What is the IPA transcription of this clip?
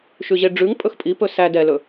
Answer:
ʃ ʉ ʑ e ɖ͡ʐ ʉ ŋ pʼ ɵ x pʼ i p ɵ s æ d ɛ l ɵ

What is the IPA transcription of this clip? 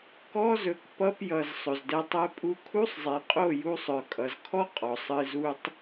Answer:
k ɔ˦ z ɵ˨ k p ʌ˧ p j ʌ˨ z sˤ ɵ˨ z d ɛ˧ tˤ ɛ˦ pʼ u˧ kʰ u˦ sˤ zˤ e˨ qʼ o˦˨ j u˧ sˤ œ˨ kʼ ʌ˨ z kʰ ɔ˦ qʼ ɔ˨ sˤ ɨ˧ z u˦ tˤ

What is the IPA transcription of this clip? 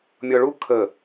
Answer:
mʲ ɔ ɭ u kʰ ə

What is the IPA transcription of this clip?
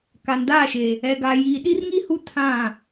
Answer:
k a˨ n d aː˦˨ ʃ e˨ | ɛ˨ ɡ a˨ j iː˨ ɗ i˦ r ŋ i˦ h u˦ tʰ ã˦˨

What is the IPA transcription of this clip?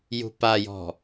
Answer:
j ṳ p a j ɔ̤

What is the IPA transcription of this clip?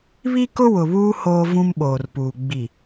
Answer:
β i˦ k ʊ˦ w ʊ˨ β uː˦ h oː˦ v ũ˦ m ɓ oː˨ r p uː˨ ɡ͡b i˨

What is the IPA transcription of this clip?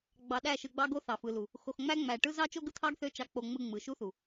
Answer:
ɡ͡b ɑ˧ ɗ æ˦˨ ʃ ɯ˧ ɡ͡b ɑ˦ ɡ o˦ θ ɑ˨ f ɯ˨ l u˨ | x o˧ x ŋ͡m æ˦ ŋ͡m æ˧ ʈ ɯ˦ z ɑ˦ t͡ʃ o˦ ɡ ɯ˦ t̪ʰ ɑ˦ ɡ θ ø˦ t͡ʃ ɑ˧ k͡p o˧ ŋ͡m ɯ˧ ŋ͡m ɯ˨ ʃ u˦ θ u˨

